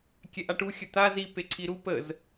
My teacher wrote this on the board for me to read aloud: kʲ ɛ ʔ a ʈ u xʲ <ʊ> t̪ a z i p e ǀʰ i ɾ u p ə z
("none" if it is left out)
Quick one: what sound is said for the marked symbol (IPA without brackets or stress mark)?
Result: ə